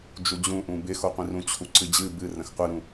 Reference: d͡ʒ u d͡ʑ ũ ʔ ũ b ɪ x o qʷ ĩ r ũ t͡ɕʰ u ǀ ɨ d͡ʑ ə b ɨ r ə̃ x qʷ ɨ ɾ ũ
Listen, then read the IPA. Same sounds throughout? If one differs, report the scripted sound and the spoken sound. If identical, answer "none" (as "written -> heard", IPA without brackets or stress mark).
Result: ə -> ɨ